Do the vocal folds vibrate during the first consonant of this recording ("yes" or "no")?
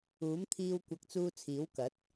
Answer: yes